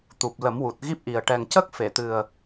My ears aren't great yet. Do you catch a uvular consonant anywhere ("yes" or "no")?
no